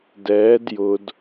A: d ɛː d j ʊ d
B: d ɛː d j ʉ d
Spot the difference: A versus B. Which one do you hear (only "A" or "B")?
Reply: A